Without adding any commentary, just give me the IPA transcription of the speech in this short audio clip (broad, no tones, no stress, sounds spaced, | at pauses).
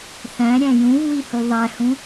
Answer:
θ æ̃ ɾʲ æ̃ j ũ v w i h u ðˤ æ h ũ